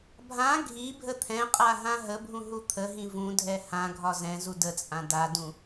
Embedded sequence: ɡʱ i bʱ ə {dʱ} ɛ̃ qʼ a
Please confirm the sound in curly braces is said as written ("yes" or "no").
no